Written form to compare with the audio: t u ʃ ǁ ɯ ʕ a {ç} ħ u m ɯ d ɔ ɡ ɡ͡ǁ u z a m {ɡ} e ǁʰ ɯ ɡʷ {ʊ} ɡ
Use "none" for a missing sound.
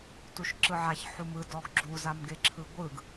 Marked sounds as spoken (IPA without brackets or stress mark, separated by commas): ç, ɡ, ɯ